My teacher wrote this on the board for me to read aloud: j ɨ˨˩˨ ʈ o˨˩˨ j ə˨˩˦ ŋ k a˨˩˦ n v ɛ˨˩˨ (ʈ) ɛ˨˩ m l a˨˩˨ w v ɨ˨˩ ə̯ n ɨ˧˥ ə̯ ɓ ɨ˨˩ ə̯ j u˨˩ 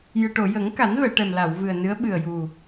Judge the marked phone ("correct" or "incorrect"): correct